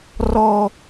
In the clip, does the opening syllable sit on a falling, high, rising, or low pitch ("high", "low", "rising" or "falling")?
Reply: high